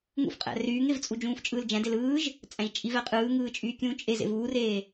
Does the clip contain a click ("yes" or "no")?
no